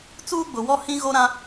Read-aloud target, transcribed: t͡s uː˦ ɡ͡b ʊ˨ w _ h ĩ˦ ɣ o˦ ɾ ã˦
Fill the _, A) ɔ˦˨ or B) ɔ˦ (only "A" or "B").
B